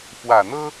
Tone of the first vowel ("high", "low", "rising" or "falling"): low